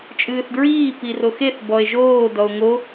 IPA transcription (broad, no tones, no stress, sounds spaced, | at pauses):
t͡ʃʼ ɨː θ d ɹ iː p i r o x e θ b ɔ e̯ ʒ oː d ɔ o̯ ŋ o